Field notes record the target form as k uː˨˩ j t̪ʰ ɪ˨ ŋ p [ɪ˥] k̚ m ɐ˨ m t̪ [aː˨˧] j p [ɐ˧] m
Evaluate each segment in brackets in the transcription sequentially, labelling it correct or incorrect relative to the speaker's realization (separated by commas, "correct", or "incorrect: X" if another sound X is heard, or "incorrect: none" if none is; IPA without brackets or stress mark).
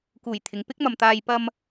correct, incorrect: aː˧, correct